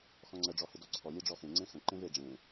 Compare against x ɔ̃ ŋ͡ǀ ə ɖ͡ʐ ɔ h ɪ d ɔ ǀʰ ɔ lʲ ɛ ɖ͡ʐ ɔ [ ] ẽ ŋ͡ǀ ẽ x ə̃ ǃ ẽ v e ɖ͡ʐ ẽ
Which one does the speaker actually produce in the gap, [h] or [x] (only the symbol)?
x